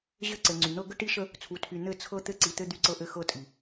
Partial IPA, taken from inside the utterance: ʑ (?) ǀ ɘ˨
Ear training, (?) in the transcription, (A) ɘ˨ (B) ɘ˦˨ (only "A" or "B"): B